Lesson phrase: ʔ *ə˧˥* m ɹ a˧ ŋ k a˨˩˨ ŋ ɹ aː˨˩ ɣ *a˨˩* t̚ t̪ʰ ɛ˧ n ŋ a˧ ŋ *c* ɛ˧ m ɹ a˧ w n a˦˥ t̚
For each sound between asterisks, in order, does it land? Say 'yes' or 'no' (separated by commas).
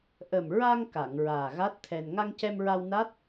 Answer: no, no, yes